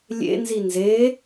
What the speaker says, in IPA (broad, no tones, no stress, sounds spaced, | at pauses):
lʲ ḛ n z i n z e